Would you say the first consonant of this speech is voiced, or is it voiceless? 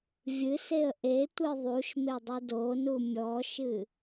voiced